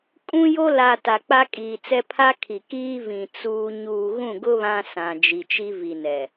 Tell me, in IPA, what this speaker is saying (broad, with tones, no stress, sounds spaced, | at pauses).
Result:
kʼ ũ˦ j o˦ l a˨ t a˨ k͡p a˦ kʼ iː˨ t͡s ɛ˦ pʰ a˦ kʰ i˨ k iː˦ v ĩ˨ t͡s uː˦ ɲ uː˨ ɣ ũ˦˨ ɡ ʊ˦ β ã˦ s ã˨ d͡ʒ i˨ t͡ʃ i˦ v i˨ n ɛ˨